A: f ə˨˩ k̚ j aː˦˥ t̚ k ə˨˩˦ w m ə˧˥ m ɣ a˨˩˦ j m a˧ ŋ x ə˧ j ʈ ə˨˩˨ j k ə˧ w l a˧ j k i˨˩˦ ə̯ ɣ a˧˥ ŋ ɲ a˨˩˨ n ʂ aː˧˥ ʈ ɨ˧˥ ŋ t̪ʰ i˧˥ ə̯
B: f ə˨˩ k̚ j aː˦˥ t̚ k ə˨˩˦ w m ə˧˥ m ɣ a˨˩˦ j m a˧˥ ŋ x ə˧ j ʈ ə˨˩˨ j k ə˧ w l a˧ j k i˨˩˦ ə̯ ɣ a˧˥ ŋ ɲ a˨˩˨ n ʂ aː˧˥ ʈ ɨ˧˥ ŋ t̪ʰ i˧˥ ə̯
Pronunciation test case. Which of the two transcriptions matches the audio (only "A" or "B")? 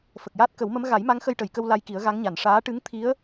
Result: B